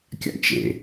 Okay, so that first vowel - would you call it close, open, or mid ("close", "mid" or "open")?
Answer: open